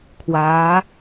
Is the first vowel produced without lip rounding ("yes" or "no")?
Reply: yes